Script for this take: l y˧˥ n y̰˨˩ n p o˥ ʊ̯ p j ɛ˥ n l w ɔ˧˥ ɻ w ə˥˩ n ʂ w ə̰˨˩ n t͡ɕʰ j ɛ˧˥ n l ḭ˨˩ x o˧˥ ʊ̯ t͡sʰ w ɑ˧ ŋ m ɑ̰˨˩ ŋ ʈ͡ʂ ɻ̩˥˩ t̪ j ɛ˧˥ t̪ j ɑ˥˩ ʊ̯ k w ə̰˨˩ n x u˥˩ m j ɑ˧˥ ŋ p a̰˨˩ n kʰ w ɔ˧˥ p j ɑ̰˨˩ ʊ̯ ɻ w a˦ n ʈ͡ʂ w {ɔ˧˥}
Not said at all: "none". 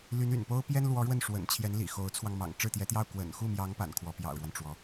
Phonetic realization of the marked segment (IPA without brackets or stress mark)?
ɔ˧˥